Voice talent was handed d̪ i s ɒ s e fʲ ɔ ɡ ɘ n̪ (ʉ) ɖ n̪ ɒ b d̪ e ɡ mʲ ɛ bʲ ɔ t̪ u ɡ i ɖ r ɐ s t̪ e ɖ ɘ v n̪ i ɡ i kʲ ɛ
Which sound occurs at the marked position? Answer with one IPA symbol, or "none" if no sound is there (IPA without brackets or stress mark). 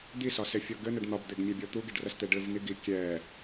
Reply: ɘ